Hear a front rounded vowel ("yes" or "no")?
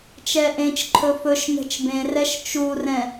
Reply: no